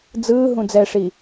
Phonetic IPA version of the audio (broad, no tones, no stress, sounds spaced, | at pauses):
d͡z ɯː ɦ ũ d͡z ɛ ʂ i